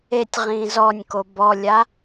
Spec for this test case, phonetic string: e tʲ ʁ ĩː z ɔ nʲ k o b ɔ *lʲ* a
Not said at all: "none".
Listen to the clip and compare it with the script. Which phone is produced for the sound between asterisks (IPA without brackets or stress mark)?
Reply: lʲ